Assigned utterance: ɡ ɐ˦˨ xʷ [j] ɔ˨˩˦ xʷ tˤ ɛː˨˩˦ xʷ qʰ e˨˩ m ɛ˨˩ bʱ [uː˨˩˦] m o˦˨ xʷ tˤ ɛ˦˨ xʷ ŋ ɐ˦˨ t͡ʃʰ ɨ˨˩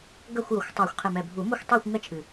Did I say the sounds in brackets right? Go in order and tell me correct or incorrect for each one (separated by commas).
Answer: correct, correct